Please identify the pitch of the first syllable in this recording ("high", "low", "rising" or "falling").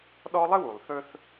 high